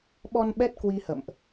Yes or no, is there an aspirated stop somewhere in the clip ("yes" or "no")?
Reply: no